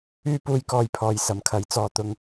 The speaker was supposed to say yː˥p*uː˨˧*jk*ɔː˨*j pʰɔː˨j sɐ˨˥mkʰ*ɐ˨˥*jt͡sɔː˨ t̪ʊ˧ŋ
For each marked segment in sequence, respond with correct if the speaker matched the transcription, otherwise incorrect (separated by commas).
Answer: incorrect, correct, correct